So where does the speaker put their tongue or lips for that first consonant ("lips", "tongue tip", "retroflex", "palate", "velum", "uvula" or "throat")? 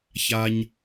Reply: palate